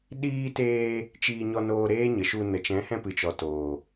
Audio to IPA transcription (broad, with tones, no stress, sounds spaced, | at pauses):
ɗ iː˧ t eː˧ | t͡ʃ iː˧ ɲ ɔ˧ n oː˧ ɾ eː˦ ɲ ə˨ ʃ u˧ n ə˨ t͡ʃ ɛ̃˨˦ h ɛ̃˧ p ɨ˨ t͡ʃ ɔ˨ t oː˨